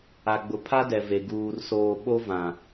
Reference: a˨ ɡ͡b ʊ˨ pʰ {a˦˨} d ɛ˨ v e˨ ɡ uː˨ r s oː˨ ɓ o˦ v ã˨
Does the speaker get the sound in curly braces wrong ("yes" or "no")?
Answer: yes